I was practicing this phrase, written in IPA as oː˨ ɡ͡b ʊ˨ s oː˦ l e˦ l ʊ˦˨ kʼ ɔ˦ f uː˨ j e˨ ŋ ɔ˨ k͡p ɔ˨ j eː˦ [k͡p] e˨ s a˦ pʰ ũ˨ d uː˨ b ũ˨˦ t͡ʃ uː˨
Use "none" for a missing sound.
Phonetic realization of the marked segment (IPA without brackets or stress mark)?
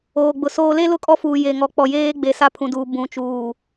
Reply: ɡ͡b